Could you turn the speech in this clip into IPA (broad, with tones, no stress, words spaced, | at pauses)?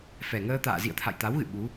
fɛ˨˩ŋəː˧t̪a̰ː˧˨ zḭ˧˨ə̯ t̪ʰa̰˧˨jt̪a˨˦wɣɨ̰˧˨ ɓu˨˦